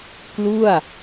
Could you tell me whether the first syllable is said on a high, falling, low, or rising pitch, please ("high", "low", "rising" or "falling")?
falling